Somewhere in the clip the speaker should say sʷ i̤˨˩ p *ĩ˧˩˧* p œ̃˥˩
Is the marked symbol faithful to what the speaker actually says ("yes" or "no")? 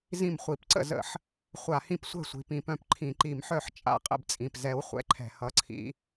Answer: yes